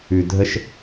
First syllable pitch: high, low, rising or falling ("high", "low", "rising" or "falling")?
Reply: low